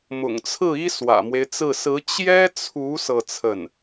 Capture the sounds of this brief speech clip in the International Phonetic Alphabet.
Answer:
m ʊ̰˨˩ ŋ t͡sʰ ɹ̩˥˩ i˥ s w ä̰˨˩ m w e˦ ɪ̯ t͡s ɹ̩˥˩ s ɹ̩˧˥ t͡ɕ j ɛ˥ t͡sʰ u˧˥ s ɤ˥˧ t͡sʰ ə˥˩ n

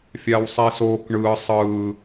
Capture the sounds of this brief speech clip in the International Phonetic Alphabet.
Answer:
fʲ a w sˤ i s oː k ɳ ɯː sˤ ɯː

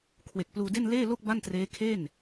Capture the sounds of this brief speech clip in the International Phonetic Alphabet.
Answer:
kʰ w e˨˩ k̚ p l uː˧ d e˥˩ n l eː˥˩ l o˥˩ k̚ b a˥˩ n t r eː˦˥ kʰ e˥˩ n

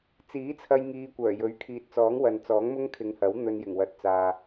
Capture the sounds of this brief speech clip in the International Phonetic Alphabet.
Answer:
t͡s iː˨˥ t͡sʰ ɐ˧ j ŋ iː˧ kʷ œː˨˩ j ɵ˨˥ ɥ kʰ iː˨ t̚ t͡s ɔː˨˥ ŋ w ɐ˨ n t͡s ɔː˨˥ ŋ m ʊ˥ ŋ kʰ ɪ˨˧ ŋ h ɐ˨˥ w n̪ ɵ˧ n j ɪ˨˩ ŋ w ɐ˨˥ t̚ t͡s aː˨

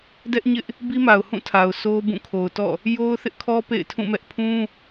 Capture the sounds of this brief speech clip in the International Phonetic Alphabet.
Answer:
d ɛ˦ ʔ ɲ ɪ˦ ʔ | b i˦ m a˨ ʊ̯ h ũ˦˨ tʰ a˨ ʊ̯ sʰ o˦ b ũ˦˨ kʰ o˨ ʊ̯ t ɔ̰˦˨ | j o˦ ʊ̯ θ ɪ˦ ʔ kʰ ɔ˦ p ḛ˦˨ ɪ̯ tʰ ũ˦˨ m ɛ˦ ʔ pʰ ũ˦

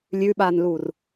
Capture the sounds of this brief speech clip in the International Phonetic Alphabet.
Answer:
lʲ ʉ ɓ a n l u r

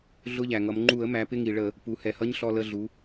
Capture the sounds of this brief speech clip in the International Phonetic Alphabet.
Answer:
ɮ ʊ˧˥˧ ʎ æ˩ ŋ ʌ˩˧ m ŋ͡ǃ u˧˩˧ ə̯ m æ˩˧ p ɪ˧˥˧ ŋ i˩ ɭ ə˧˩˧ | p u˩˧ h ɛ˩˧ h ʌ˧˥˧ ɲ ɬ ɔ˧˩ l ə˧˩ ɮ u˩˧

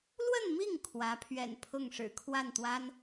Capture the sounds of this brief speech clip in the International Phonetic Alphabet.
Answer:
l w ə˥˧ n m i˥˩ ŋ kʰ w ä˧˥ pʰ ɥ ɛ̰˨˩ n pʰ ʊ˥˩ ŋ ʂ ɻ̩˨˩ kʰ w a˥˩ n t̪ w a˥ n

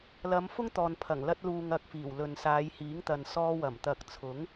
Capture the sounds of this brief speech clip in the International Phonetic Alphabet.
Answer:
l ɐ˨˧ m f ʊ˥ ŋ t̪ ɔː˨ n pʰ ɐ˨˩ ŋ l ɐ˧ t̚ l uː˨ ŋ ɐ˧ k̚ f iː˨˩ w l ɵ˨ n s aː˨˧ j h iː˨˥ ŋ t̪ ɐ˨ n s ɔː˧ w ɐ˨˩ m t̪ ɐ˨ k̚ t͡sʰ ʊ˨˥ ŋ

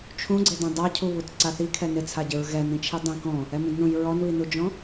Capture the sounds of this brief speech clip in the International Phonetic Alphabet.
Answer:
t͡ʃʰ ũ ɡ͡ǀ e d ɛ̃ dˤ a cʰ u β u t ǀ a θ i kʰ ɛ n ɪ t͡sʰ a ɟ ɪ ɹ ɣ ɛ n ĩ t͡ʃʰ i dˤ ẽ k ɔ̃ | ɛ m ũ d n ũ j ɹ ɔ n β i n u d͡ʒ ɔ̃

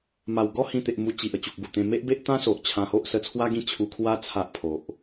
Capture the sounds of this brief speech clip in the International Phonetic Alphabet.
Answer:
m a˨˩ w ɡ ɔ˥˧ h ĩ˧ t̪ e˨ ʔ m u˧ t͡ɕ i˨ ʔ ə˨˩ t͡ɕ u˨ k̚ b u˨˩ t̪ ẽ˧ m e˦ ʔ b e˦ ʔ t̪ ã˦ s o˨ ʔ t͡ɕʰ ã˧ h o˦ ʔ s ə˧ t͡sʰ w a˦ ɡ ĩ˥˧ t͡ɕʰ u˧ kʰ w a˦ t͡sʰ a˦ ʔ pʰ o˨ ʔ

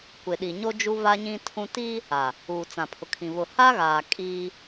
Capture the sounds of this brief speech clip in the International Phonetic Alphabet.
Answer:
kʷ ɪ˨ ɗ i˨ ɲ o˦ d͡ʒ u˦ v a˦ ɲ ĩ˦ tʰ ũ˦ t i˦ | a˨ | uː˨ t͡s ã˨ pʰ ʊ˨ kʰ ĩ˨ β ʊ˨ h a˦ ɣ aː˨ kʼ i˦

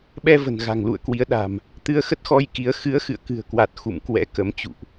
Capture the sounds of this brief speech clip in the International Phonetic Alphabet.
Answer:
ɓ ɛ˧ v ə̤˨˩ n ɣ a̤˨˩ ŋ l ṵ˧˨ ə̯ k w i˨˦ ə̯ ɗ a̤˨˩ m | t̪ ɨ˧ ə̯ x ə˦˥ t̚ x ɔ˧ j k i˨˦ ə̯ x ɨ˨˦ ə̯ x ɨ̰˧˨ ə̯ k ɨ̤˨˩ ə̯ k w a˨˩ t̚ x ṵ˧˨ m k w ɛ̰˧˥ k ə˨˦ m t͡ɕ ṵ˧˨ ʔ

